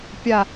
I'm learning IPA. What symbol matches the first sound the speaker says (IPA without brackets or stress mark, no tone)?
pʲ